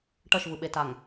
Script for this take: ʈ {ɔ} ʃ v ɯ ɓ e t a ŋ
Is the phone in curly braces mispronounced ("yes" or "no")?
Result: yes